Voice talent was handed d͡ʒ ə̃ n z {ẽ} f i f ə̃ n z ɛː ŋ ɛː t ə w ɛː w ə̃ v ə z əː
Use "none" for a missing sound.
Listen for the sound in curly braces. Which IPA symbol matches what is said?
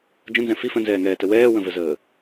ɛ̃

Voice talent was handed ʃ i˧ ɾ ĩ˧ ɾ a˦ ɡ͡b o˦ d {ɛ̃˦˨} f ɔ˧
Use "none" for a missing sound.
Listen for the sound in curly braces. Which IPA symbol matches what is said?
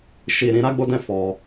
ɛ̃˦˨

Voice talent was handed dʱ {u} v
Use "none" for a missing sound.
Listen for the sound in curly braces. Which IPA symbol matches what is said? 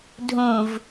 ũ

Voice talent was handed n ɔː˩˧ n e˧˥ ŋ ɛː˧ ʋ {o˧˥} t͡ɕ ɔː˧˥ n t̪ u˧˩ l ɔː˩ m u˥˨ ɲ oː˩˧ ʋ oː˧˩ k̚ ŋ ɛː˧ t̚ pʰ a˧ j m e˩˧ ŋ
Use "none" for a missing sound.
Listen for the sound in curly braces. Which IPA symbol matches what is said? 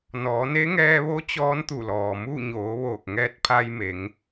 o˧˥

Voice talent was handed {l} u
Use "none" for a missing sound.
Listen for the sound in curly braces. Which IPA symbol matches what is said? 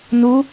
n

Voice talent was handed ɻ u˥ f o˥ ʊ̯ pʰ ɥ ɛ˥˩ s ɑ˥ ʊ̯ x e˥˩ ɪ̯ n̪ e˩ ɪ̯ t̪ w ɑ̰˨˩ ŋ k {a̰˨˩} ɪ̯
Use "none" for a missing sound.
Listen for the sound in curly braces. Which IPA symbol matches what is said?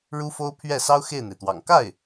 a˥˩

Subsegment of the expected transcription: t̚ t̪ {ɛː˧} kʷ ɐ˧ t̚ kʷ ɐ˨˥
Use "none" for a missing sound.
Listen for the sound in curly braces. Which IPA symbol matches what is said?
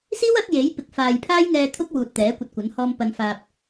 ɛː˨˥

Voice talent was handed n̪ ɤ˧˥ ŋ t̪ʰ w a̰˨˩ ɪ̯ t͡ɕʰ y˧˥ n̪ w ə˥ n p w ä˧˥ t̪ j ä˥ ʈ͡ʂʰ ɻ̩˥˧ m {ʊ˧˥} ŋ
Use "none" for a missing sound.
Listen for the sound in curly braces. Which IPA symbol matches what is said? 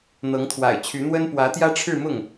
ʊ˥˩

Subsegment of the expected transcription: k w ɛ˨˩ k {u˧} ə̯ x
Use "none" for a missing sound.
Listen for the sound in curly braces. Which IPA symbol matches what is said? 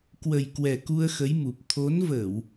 u˧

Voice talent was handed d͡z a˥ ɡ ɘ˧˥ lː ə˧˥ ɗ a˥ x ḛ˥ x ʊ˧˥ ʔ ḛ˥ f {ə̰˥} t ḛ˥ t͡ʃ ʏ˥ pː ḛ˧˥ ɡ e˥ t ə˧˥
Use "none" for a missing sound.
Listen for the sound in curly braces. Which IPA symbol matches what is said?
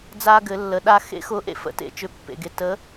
ə̰˧˥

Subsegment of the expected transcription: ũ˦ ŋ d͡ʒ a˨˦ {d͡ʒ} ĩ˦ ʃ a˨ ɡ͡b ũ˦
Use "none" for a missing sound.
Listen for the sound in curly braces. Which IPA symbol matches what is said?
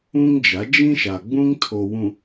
d͡ʒ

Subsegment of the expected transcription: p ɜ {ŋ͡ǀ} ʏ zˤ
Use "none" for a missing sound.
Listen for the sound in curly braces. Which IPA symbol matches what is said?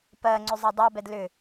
ŋ͡ǀ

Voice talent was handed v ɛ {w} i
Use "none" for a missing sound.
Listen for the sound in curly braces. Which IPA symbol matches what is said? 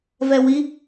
w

